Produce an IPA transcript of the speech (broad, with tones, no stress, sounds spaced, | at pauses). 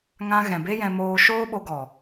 ŋ ã˧ ɣ ɛ̃˨ b e˦ j ɛ̃˧ m oː˦ ʃ oː˦ ɓ o˧ ɡ ɔ˨